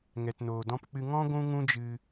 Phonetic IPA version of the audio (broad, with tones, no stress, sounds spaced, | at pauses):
ŋ ɛ˨ t n oː˨ d ɔ̃˧ p k͡p ɨ˧ ŋ ɔ̃˦ ɡʷ ũ˦ ŋ ũ˦ d͡ʒ ɨ˧